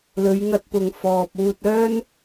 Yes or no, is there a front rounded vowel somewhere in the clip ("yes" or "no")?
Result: yes